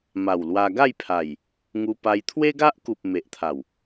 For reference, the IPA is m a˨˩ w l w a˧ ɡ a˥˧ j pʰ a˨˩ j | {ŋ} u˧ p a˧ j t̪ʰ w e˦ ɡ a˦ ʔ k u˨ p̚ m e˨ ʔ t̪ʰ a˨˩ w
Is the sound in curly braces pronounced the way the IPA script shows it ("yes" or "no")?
yes